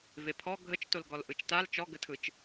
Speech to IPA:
vepʰɔ ɡʱət͡ʃtolɡɔl ʔɯt͡ʃtal t͡ʃɔɡətʰɯt͡ʃ

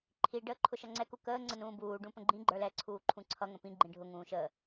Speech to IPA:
ǃʰi ɖəːǃʰʊʃʌŋ͡ǀɛ kukəː ŋ͡ǀənũːbuː ɖũpə̃ɡ͡ǃĩ ɡ͡ǃə˞lɛ ǀʰuːǃʰũǀʰʌ ŋə̃pĩ ɡ͡ǃĩɖʱʊ ŋũːʃə

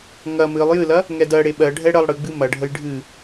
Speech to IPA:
ŋɐ mɨlˠ jɨlɐ | ŋɛdɜɽe ɓɜɖʱɛ ɽəlˠ ɽɨɡ͡bɨ mɐɖʱəj ɖʱɨ

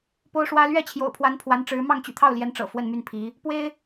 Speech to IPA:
po˥ʊ̯ʂwä˥ lɥɛ˥˩t͡ɕʰjo̰˨˩ʊ̯pʰwa˧˥n pʰwa˧˥nʈ͡ʂɻ̩˧˥ mɑ˥˩ŋt͡ɕy̰˨˩t̪ʰɑ˥˩ʊ̯ljɛ˧˥n ʈ͡ʂɤ̰˨˩fwə˥˧nmy˥˩npʰi˧˥ | pwe˥ɪ̯

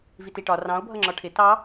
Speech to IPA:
vitiʈɒ rɑ̃o̯ bʱʌŋ͡ǁɒʈʰɪ tɑ

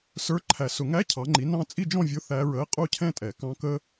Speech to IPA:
sə˞˧˥˧ ǃʰæ˨˩sʊ˨˩˦ŋæ˧˥˧ cʰɑ˨˦ŋ͡ǃi˨˦ nɑ̃˦˥ t͡sʼi˥˧d͡ʒɔ̃˥˧vʲʊ˧˥˧ θæ˦˥ɹə˧˥˧ɪ̯ qʼu˥˧cʰɛ̃˥˧tʼɛ˨˩˦ kɑ̃˦˥ kə˦˥

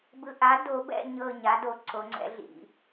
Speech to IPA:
bɯ˨ʔa˩˥do˨˩˦bɛ̰˦˨ ɲɤ˦˨ ɲa˩˥do˩˥ ǀo˩˥ŋ͡ǀɛ̰˩˥ɮḭ˨˩˦

